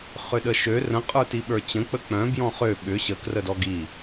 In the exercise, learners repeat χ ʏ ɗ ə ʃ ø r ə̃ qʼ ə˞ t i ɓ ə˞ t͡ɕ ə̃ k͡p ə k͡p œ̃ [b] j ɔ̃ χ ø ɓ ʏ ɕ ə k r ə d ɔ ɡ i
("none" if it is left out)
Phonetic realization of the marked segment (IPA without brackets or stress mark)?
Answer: b